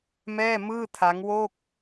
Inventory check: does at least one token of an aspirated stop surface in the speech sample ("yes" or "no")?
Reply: yes